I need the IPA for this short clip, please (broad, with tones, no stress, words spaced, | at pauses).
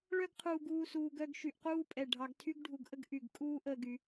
ɭœ˥ɡqʰuː˧ɡ uː˥˧suː˧ɡœ˥˧ɡ ʃy˧ʔquː˥pʼɛ˧˩ ɖʱɑ˧ɡtʰy˥ɡɖʱu˧ɡʔə˥ɡ ʔy˧˩ɡ kʼuː˥˧ʔ əː˩˧ɡy˩˧